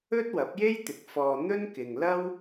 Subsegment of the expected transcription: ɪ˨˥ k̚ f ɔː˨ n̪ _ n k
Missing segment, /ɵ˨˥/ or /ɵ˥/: ɵ˥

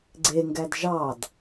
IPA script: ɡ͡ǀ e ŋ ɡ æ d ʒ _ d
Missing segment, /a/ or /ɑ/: ɑ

